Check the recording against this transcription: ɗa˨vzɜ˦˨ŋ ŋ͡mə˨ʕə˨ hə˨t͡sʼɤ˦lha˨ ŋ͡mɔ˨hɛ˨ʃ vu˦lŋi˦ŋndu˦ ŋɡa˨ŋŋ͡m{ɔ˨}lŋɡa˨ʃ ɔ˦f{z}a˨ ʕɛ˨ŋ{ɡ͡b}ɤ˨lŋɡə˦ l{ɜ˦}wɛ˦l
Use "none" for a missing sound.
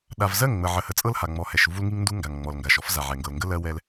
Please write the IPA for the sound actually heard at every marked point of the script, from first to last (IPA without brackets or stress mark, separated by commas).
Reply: ɔ˨, z, ɡ, ɜ˦